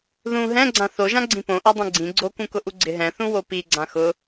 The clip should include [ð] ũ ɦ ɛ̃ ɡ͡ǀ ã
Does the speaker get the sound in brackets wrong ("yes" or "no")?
no